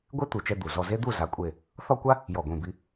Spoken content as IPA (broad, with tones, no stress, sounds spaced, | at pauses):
ɡʷ e˥ t̪ u˧˩ t͡ʃ ɛ˥ d̪ u˧˩ z ɔ˥˧ z e˥ d̪ u˥˧ z a˧˥˧ kʷʼ e˥˧ | θ ɔ˥˧ kʷ a˥ | j ɔ˧˩ ɡʷ ĩ˧˩ b i˨˦